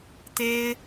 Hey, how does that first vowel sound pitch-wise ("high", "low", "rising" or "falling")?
high